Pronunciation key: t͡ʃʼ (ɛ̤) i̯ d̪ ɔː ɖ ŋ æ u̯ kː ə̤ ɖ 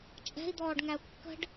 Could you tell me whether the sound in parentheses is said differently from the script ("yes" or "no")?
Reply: no